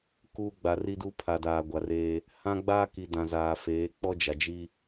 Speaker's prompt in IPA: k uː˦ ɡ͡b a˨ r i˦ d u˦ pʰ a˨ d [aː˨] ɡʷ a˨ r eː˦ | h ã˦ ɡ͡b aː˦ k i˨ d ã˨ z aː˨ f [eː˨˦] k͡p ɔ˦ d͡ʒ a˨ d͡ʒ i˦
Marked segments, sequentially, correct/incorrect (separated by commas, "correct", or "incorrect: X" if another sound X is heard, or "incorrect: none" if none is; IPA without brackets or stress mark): correct, correct